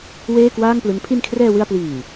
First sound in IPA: w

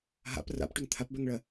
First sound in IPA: ɦ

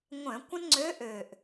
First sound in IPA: ŋʷ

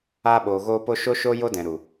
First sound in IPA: aː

